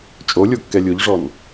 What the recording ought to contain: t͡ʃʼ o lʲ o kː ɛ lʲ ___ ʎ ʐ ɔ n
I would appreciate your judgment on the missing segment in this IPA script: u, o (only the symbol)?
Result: u